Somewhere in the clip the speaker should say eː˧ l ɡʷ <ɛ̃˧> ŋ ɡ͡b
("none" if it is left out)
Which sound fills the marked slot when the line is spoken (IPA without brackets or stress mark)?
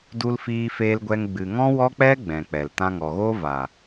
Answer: ɛ˧